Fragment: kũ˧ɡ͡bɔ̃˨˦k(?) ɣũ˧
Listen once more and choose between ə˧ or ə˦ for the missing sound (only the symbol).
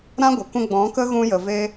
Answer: ə˦